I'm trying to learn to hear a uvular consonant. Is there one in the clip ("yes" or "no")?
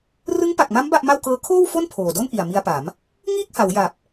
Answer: no